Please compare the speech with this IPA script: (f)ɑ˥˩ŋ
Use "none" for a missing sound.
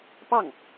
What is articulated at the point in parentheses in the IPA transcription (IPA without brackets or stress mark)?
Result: p